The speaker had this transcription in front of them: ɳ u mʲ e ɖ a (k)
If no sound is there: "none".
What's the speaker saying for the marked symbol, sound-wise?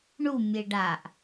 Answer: ʔ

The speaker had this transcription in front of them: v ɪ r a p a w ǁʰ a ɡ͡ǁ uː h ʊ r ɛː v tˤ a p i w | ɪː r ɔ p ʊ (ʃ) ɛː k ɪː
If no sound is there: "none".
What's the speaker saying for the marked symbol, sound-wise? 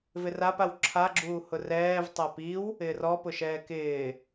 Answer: ʃ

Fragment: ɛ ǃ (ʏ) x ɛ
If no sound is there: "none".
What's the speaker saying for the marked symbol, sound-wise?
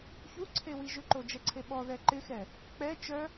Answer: ɪ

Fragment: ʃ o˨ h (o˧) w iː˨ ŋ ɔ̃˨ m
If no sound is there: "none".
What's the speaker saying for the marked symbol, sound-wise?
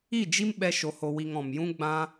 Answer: o˨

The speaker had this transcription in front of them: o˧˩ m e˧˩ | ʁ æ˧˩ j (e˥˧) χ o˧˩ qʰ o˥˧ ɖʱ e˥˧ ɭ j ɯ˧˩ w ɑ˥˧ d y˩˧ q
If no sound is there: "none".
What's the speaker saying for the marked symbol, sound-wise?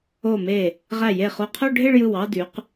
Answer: e˧˩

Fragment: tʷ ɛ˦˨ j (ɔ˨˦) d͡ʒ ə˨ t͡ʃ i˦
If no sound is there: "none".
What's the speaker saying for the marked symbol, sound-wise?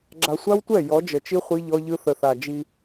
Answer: ɔ˨˦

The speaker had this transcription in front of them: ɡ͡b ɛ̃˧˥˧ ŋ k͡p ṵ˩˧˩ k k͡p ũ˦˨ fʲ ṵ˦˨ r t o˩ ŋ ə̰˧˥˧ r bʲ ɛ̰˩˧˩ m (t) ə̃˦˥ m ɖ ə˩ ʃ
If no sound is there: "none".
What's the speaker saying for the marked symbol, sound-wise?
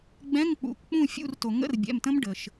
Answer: t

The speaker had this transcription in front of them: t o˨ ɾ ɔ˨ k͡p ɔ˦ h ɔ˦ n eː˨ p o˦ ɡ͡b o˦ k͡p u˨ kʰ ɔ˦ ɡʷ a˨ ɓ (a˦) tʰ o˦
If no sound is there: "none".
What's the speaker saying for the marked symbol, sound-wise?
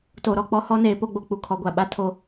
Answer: a˦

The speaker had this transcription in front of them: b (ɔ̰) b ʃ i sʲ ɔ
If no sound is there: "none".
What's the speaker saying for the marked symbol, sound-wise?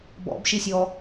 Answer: ɔ̰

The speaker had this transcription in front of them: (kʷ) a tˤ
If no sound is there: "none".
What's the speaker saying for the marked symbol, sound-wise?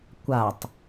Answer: kʷ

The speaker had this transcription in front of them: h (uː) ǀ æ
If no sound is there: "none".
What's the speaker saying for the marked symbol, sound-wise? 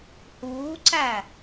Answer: uː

